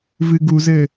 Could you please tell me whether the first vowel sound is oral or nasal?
oral